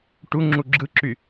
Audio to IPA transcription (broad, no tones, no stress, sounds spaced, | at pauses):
ʈ u ŋ͡ǁ u ɡ͡ǁ ɯ ǁ y